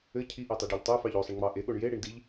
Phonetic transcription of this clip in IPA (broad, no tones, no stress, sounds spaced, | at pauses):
ɘ cʰ i ʔ e tˤ i ɖ e ʎ tˤ e f ɑ ʎ o sˤ ɘ ɳ ŋ͡m ɑ ʔ e ɠ o ɳ j e ɽ i ɳ d i ʎ